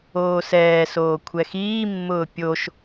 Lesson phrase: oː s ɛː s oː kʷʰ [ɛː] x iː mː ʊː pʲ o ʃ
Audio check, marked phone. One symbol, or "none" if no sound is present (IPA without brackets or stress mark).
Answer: ɛ